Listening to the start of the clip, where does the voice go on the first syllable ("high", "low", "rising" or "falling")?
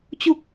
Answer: low